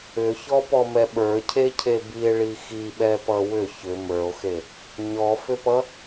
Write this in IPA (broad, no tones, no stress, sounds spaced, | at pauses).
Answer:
ʏ ç ɔ p ɔ m ɛ ɓ ə˞ cʰ e cʰ e b i e̯ ɭ i x i ɓ ɛ p ʌ w ʏ ç ʏ m ə˞ o̯ x e | ɲ ɔ f ʏ p ʌ